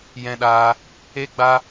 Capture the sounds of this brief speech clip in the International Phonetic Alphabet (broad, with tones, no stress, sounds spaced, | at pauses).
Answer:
j ɛ̃˧ ɗ aː˧ | e˦ ɡ͡b a˦